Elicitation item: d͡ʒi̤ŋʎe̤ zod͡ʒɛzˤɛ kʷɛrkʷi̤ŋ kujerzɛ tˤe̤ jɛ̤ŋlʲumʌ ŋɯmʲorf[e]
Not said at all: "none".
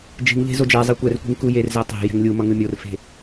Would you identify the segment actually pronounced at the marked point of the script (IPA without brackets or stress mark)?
e̤